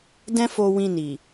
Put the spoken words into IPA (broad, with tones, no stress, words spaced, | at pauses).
dɛ̃˦fo˧ wĩ˧ni˨